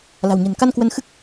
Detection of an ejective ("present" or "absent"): absent